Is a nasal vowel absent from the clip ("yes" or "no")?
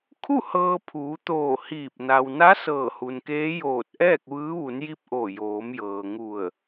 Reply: yes